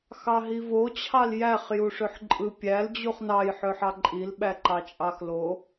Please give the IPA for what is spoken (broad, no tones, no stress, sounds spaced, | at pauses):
x ɑ ɦ i v o t͡ɕʰ ɑ l j æ χ j u ʂ ø ħ ǃʼ ɯ pʲ æ l d͡ʑ u χ n ɑ j ħ ø ħ ɑ ǃʼ i l ɓ æ ǃ ɑ t͡ʃʼ ɑ x l o